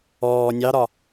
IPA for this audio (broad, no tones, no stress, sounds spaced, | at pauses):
ɔː nʲ ɑ ɾ ɒ